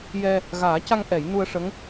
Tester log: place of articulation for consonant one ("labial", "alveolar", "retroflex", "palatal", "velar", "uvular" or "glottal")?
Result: palatal